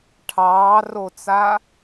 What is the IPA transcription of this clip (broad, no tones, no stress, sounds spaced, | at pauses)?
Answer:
ʈʰ ɑː r o t͡s a